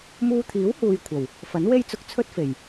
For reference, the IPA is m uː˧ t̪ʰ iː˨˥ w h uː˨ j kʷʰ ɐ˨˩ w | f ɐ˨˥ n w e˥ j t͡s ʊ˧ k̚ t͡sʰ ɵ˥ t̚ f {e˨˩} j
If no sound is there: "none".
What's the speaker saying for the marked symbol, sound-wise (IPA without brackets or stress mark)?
e˨˩